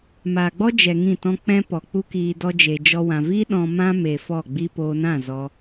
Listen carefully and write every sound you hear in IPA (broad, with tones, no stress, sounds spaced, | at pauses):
m aː˨ ɡ͡b ɔ˦ d͡ʒ ɛ˧ ŋ ĩ˦˨ t ɔ̃˦ k͡p ɛ̃˦ p ɔ˨ k͡p u˦ k iː˧ d ɔ˦ d͡ʒ e˧ d͡ʒ ɔ˦ w ã˧ v i˦ ɗ ɔ̃˧ m ã˦ m e˧ f ɔ˦˨ ɡ͡b i˦ p oː˧ n ã˦˨ z ɔ˧